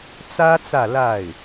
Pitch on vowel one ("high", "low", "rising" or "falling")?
high